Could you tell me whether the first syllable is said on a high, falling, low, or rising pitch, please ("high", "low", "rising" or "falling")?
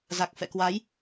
low